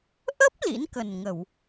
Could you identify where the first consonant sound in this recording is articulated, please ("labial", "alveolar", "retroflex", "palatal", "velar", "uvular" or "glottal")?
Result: glottal